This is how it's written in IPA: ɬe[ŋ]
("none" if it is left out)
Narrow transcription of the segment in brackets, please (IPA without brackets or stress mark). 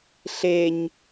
ɲ